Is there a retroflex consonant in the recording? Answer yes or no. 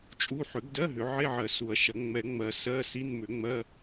no